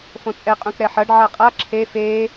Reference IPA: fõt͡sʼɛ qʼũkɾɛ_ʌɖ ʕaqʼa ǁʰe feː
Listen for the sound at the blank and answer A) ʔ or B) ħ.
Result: B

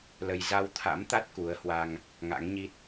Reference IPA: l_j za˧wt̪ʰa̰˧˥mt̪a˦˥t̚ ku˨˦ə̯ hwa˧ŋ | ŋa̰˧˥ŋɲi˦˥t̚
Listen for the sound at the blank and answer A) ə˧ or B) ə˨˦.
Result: A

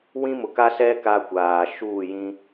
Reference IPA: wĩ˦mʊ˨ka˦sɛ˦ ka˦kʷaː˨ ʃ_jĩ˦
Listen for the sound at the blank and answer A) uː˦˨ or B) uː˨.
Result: A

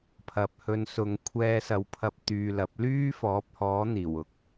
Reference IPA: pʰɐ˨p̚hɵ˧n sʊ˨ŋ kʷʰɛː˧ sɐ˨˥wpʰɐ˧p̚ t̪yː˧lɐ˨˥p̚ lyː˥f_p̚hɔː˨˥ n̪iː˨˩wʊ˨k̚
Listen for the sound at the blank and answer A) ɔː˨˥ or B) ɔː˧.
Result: A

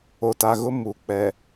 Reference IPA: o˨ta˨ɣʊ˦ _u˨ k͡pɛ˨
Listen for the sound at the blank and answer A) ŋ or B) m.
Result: B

